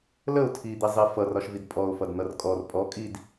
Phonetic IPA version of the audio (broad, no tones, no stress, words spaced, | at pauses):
ləʊ̯ tʰid̪izˤi fʌrɒʃvid pʼɔʊ̯fʌdn̪ʌr kʼɔr pʼɔ kʼid